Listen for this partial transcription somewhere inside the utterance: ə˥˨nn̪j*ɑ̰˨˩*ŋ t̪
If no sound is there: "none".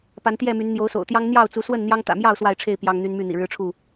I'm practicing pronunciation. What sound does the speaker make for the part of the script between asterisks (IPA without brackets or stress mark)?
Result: ɑ˦